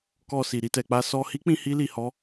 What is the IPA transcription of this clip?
kɔ˧si˨ ɾi˧tɛ˨k͡pa˧ sɔ˧hi˦k͡pĩ˧ hi˦li˧hɔ˦

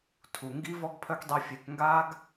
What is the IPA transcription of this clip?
tʰu˦ ŋɡi˦vɔ˦ɡpʰœ˦k dˤi˦fʲe˦k ŋɡaː˦ɡ

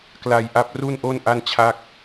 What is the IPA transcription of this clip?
kla˧jʔa˦˥p̚ ru˥˩nʔo˥˩n ʔa˥˩nt͡ɕʰa˥˩k̚

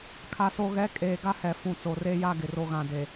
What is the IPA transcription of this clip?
kʰa˨so˨ɣɛ˨˦ kʼeː˨ɡa˦hɛ˨ fũ˨t͡so˨re˦ ja˦ɡɪ˨ ro˨ɣã˨ de˨

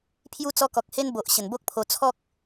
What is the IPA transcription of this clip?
pʰju˧t͡sɔ˧kɔ˨k̚he˧n bo˨ʔ ɕə˨˩nbo˦k̚pʰo˧ t͡sʰɔ˦k̚

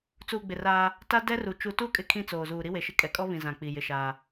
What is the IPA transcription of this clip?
t͡suː˨ɡ͡bɪ˨raː˦ | ta˦ dɛ˦ru˨ t͡ʃu˨tu˦˨kʼɪ˨ kʰĩ˦˨t͡soː˨zuː˨ ɾi˦we˨ʃɪ˦ kʼɛ˨kʼɔ˦βĩ˨ zã˨ k͡pi˨jɪ˦ʃaː˦

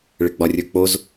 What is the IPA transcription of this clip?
ɭɪɡ͡bɒrʲə˞k͡poz

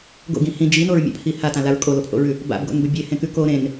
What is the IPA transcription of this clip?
ɡo̰ɡĩ hĩ d͡ʒinoɹmʲa̰pʰi hatãlaɹ kʼolopʰo̰ɹʉ | ba̰bɡo̰nbɵ bʲehẽkʉ ko ɾẽn

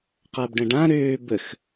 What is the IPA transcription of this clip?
qabɖə̃ɖã ɾøː bəx

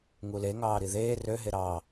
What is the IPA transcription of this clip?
ŋule ŋɑːɾiðeː rø ɦeɾɑː

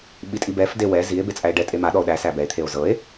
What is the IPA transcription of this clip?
ɓitʼibɛfde wɛ zie̯ bet͡sʼæe̯ɖɛtʼe maɗɔo̯ ɗæsæ bɛe̯t̪ʰeo̯ zɤe̯

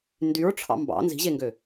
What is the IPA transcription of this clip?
ndyɹʈ͡ʂʰɑ̰ mbɑ̰ nzi̤ʑeŋɡø

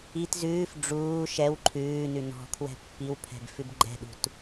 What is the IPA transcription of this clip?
it zʉːf ɖ͡ʐuː ʃɛw ǃʰʉːnʉ nɔ̤ kʰwɛ̤pːiwpʰɛ̤b fʉbɡ͡ǃɛ̤ɗṳt

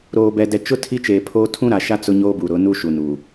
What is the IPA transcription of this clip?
ɾoː˨ bɛ˨dɛ˨t͡ʃʊ˦ tʰi˦t͡ʃeː˨pʰoː˦ tʰũ˦ɾa˨ʃa˦ t͡sʊ˦ɲoː˦bu˨ɾʊ˨˦ nu˦ʃu˨nu˨

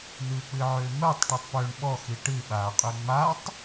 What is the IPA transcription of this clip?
n̪ɨːk͡pɨʕʏːmɜtˤ ʈetˤpʏːɳ ɓɔ xiʈɨ ɓa qʼʏːŋ͡matˤ

